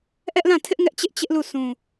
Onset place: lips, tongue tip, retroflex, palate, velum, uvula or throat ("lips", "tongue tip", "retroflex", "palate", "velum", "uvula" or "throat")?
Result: throat